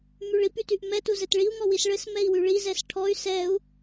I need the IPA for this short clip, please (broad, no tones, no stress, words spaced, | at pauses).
myɭip ytyʔmɛ tuzɘtɭiu̯ ŋɔwisɭɘs mɛi̯wyɭi zɛsʈʰɔy̯ sɛu̯